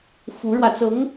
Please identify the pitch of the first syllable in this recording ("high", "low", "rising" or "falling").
rising